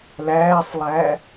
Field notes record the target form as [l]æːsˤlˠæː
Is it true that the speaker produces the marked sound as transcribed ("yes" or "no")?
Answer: yes